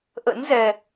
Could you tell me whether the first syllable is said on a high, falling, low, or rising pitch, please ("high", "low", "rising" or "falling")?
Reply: rising